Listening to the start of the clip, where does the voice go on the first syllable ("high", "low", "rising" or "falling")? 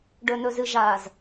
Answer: low